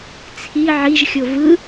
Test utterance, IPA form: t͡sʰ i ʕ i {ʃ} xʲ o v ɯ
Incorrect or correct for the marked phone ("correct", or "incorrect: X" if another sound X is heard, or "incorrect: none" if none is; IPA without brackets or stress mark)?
incorrect: ʒ